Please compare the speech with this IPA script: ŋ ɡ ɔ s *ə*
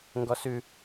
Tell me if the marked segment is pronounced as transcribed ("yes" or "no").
no